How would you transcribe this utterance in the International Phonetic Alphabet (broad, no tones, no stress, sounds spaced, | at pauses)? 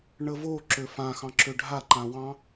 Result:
ɳ ə v o ǁ ø f ã x ɑ̃ ǁ ø ɖʱ a ǃ ã w ɑ̃